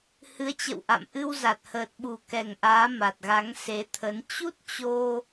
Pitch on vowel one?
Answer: rising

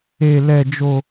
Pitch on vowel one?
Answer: high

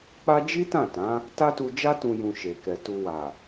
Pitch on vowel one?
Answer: high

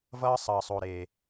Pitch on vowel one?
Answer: high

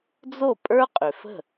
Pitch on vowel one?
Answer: falling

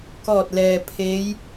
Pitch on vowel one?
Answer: falling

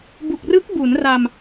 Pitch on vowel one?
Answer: low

